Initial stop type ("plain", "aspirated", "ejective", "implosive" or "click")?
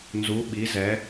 implosive